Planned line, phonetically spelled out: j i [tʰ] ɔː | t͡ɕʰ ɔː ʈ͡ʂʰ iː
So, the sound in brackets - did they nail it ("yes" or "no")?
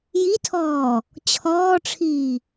yes